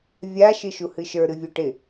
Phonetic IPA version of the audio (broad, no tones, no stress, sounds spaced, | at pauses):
vʲ a ʃ ɨ ʃ u h ɨ ʃ ə˞ ɾ ɨ vʲ u ʈ ɪ